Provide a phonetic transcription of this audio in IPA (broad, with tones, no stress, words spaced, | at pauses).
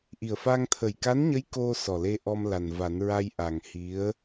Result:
ʔi˨˩ə̯fa˧ŋ t̪ʰə˨˩jka˧˥nɲə˧˥j ko˧ sɔ˨˩le˧ ʔɔ˧m la˨˩nva˨˩˦nɹa˧j ʔa˨˩ŋhi˧˥ə̯